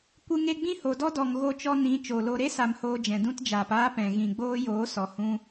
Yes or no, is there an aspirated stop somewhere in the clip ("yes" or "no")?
no